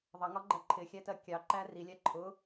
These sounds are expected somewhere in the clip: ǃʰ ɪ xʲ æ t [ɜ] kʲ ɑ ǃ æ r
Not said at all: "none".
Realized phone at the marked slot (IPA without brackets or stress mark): ɜ